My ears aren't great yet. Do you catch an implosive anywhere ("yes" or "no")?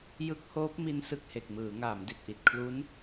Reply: no